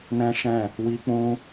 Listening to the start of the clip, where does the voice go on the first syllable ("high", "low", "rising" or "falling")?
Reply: high